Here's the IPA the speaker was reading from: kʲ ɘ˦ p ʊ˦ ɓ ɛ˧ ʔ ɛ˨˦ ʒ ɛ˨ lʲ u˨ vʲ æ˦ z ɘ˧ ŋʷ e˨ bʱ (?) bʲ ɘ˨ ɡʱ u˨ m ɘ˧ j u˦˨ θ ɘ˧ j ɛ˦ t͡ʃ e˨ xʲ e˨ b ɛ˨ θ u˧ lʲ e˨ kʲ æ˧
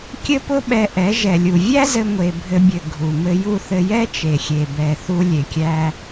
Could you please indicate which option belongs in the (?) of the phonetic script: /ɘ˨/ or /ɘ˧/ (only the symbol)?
ɘ˧